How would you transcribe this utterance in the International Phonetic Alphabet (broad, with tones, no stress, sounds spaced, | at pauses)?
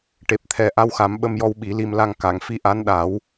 ʈ e˨˩ p̚ t̪ʰ ɛ˨˩ ʔ a˧˥ w x a˨˩˦ m ɓ ə˧ m j ɔ˧ w ɓ i˨˩˦ l i˧ m l a˧ ŋ k a˨˩˨ ŋ f i˧ ʔ a˧˥ n ɗ a˨˩˦ w